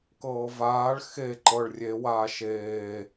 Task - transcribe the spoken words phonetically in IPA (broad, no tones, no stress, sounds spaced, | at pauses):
k ɤː v aː ɭ x e ǃ ɤ ɭ rʲ e w aː ʃ eː